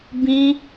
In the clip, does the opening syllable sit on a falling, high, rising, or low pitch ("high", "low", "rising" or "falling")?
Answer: high